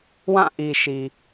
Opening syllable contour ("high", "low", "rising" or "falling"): falling